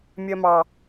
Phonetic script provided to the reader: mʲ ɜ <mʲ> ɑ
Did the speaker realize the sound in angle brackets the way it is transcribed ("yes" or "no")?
no